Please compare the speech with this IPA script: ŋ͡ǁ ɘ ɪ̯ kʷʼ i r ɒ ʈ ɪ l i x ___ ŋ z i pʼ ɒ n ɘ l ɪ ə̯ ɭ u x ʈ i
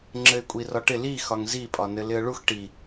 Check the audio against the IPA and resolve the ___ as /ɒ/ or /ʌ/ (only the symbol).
ɒ